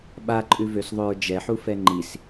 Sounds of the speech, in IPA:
ɓ a ǃʼ ʉ v ø s ðˤ ø ɹ d͡ʒ ɛ ħ u f ɛ ŋ͡ǃ i s

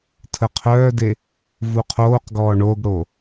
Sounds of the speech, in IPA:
tʰ ə qʰ œː d e | v u qʰ oː q ɡ ɔː ɳ o ɡ ɽ o

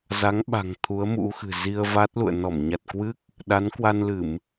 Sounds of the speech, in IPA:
z a˨˦ ŋ ɓ a̤˨˩ ŋ t̪ʰ u˨˦ ə̯ m ṵ˧˥ x ɨ̤˨˩ z i˧ ə̯ v a˦˥ t̚ l ṵ˧˨ ə̯ n ɔ˧˩ m ɲ a˨˩ t̚ k w ɨ˦˥ k̚ | ɗ a˨˦ n k w a˧ n l ɨ˧˩˨ m

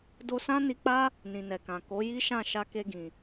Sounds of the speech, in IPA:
d o˧ s ã˦ n i˧ k͡p a˦ | n ĩ˨ n ɛ˨ k ã˨ k o˨˦ j i˦ ʃ ã˦˨ ʃ a˧ k e˧ ɡ ĩ˨

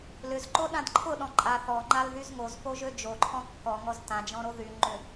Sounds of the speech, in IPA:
l ʏ z ǃ o ɗ ã d ǃʰ ʊ ɗ ɔ̃ ǃʼ a θ ɔ ŋ͡ǃ a l ð y z ŋ o z p o ʒ ø d͡ʒ o ǃʰ ɔ̃ kː ɔ ŋ ɔ z t ã d͡ʒ ɔ̃ ɾ o ð y ŋ͡ǃ ʏ

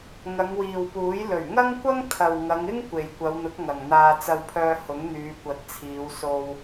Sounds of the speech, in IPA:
ŋ ɐ˨˧ ŋ w iː˨ w p uː˨˥ j l ɵ˨˩ ɥ ŋ ɐ˥ ŋ kʷ ɐ˥ ŋ t̪ʰ ɐ˨ w ŋ ɐ˨˧ ŋ ɪ˥ ŋ kʷ e˨ j kʷ ɐ˨˧ w n̪ ʊ˨˥ k̚ ŋ ɐ˨ ŋ n̪ aː˧ t͡s ɐ˧ w pʰ œː˧ h ʊ˨˥ ŋ n̪ yː˨˧ kʷ ɐ˨˥ t̚ t͡sʰ iː˨˧ w s o˧ w

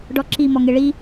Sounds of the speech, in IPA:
ɖ ɔ ǁ i m ɔ ŋ e ɭ i

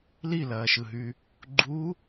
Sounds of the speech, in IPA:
l i l ɐː ʃ ɯ ɦ y | ɡ͡ǃ u

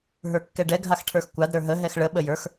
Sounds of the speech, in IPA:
ɦ ə˞ kː ɛ ɖ ɛ ɡʱ a x ʈʰ ə˞ x kʷ a d ɾ ə˞ ɦ ə ɦ ɛ x ɭ ə ɓ ə j ə˞ x

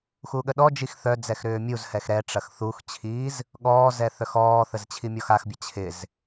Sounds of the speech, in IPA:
x u ɠ ə ɗ ɔ d͡ʒ i x θ œ d͡z ɛ x ɾ ʏː mʲ u z h ɛ x ɾ ɛ ʈ͡ʂ ɐ x θ u x t͡ɕʰ iː z | ɠ ɔː z ɛ θ œ x ɔː θ ə z t͡ɕʰ i mʲ ɔ x a x bʲ ɐ t͡ɕʰ ɪ z

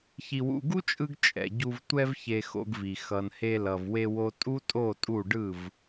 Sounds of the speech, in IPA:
ç i˨ w ṵ˨ ɡ u˦ t͡ʃʼ ɯ˧ ɡ t͡ʃʼ ɛ̰˨ ɟ u˧ v tʷ ɛ˧ v ç e˧ x o̰˧ ɡ v i˨ x ʌ˨ n h e˧ l ʌ˨ v w e˧ w o˦ tʼ u˦ tʼ o˦˨ tʼ u˦˨ ɖ ɯ˦˨ v

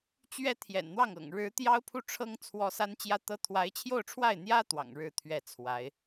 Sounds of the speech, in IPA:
t͡ɕ ɥ ɛ˥ t̪ʰ j ɛ̰˨˩ n n̪ w ɑ˥˩ ŋ ɤ̰˨˩ ŋ ɻ ɻ̩˧˥ t̪ j ɑ˥ ʊ̯ pʰ u˥˩ ʈ͡ʂʰ ɤ˥ ŋ t͡sʰ w ɔ˥ s a˥ n t͡ɕ j ä˥ t̪ ɤ˥ t̪ʰ w a˧˥ ɪ̯ t͡ɕʰ j o˥˧ ʊ̯ ʈ͡ʂʰ w a˥˩ ɪ̯ n̪ j ä˥ t̪ w ɑ̰˨˩ ŋ ɻ ɻ̩˥˧ t̪ʰ ɥ ɛ˥˩ t͡sʰ w a˧˥ ɪ̯

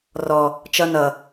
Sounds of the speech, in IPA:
r ɔ | t͡ʃ ʌ n ʌ

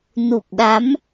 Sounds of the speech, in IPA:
n u˨˩ p̚ ɗ a˨˦ m

